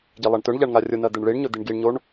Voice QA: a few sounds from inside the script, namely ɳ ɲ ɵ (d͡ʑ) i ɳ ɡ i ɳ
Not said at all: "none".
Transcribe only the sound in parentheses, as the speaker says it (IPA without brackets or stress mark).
d̪